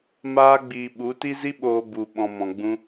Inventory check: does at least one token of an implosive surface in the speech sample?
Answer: yes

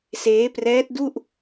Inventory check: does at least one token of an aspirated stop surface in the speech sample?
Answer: no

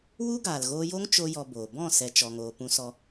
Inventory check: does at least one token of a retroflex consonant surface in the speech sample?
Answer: no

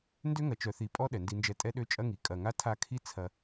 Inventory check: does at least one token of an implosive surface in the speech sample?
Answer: yes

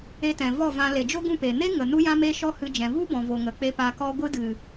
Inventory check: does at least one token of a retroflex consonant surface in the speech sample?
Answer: no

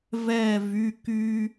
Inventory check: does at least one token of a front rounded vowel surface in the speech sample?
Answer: yes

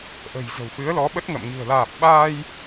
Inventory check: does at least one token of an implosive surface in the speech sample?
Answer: yes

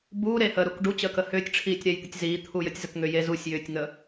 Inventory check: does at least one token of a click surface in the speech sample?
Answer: no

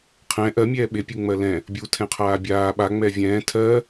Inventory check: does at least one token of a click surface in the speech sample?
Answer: no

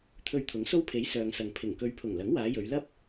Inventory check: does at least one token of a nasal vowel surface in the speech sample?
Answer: no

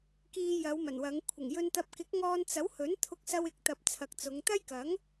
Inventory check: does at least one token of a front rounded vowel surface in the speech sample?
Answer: no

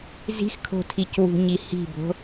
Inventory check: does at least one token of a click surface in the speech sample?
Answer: no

